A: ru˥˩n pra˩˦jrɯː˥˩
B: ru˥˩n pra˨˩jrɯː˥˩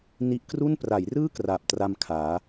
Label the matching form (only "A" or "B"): A